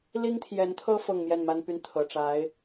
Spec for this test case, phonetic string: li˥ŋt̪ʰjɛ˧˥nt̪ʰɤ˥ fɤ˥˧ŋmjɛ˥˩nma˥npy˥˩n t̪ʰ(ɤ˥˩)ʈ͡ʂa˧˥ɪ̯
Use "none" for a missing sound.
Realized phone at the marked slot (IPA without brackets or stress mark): ɤ˨˩